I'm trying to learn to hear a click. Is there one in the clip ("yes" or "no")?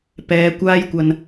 no